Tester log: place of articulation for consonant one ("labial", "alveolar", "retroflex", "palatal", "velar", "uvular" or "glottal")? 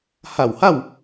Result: glottal